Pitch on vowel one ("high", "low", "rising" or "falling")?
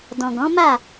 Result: low